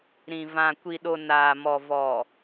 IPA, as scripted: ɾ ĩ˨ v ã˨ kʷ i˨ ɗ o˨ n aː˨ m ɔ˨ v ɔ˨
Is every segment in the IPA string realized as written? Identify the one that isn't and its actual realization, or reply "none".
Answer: none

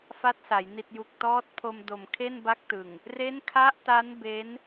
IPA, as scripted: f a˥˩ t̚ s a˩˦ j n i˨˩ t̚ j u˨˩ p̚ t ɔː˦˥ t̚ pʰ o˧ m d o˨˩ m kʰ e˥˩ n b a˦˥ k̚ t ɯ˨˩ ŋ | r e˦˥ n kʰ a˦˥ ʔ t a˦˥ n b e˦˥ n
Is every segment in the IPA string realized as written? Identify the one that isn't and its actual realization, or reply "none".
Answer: p̚ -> k̚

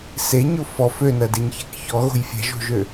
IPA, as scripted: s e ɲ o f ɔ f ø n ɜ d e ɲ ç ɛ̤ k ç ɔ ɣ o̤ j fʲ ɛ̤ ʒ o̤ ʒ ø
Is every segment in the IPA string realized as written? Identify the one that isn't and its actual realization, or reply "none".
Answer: none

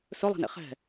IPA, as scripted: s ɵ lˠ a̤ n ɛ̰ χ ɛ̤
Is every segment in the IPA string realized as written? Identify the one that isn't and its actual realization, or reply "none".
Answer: none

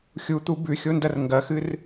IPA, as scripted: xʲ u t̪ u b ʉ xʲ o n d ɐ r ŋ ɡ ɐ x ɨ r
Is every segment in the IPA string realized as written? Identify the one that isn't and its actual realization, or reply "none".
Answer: none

